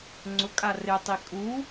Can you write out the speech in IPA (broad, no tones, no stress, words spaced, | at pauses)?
ŋ͡ǀʊkʼa rɪtˤi kʼu